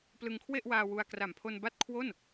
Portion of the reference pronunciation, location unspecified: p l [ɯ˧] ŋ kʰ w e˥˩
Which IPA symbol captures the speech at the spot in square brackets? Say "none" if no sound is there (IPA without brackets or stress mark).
ɯ˧